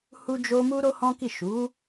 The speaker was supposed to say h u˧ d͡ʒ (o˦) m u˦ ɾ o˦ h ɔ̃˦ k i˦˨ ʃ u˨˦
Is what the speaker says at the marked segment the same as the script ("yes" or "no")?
no